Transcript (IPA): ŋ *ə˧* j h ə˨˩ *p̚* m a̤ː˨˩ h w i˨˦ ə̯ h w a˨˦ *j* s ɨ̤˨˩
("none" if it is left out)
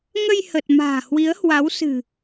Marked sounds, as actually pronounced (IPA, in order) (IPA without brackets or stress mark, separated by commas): ə˧, t̚, w